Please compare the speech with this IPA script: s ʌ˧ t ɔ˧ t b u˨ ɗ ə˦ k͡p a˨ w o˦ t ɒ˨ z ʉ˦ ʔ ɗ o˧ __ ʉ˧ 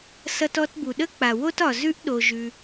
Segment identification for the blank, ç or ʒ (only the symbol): ʒ